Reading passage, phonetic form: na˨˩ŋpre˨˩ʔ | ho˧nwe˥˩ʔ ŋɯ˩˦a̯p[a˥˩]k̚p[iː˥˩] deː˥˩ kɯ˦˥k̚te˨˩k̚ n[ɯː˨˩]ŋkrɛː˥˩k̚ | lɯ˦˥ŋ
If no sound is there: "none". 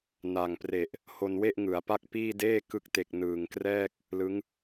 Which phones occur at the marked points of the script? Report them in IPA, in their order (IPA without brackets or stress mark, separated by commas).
a˥˩, iː˥˩, ɯː˨˩